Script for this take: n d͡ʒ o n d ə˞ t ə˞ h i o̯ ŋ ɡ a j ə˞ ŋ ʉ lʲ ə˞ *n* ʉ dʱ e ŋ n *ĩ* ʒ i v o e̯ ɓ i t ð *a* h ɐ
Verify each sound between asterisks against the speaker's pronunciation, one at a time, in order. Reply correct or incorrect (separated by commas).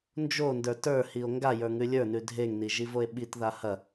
correct, incorrect, correct